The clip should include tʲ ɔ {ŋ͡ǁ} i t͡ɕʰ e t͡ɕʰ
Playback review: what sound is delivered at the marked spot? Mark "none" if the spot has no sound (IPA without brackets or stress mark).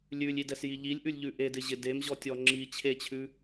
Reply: ŋ͡ǁ